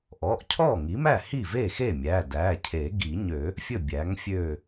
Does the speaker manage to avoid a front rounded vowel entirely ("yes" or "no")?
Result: no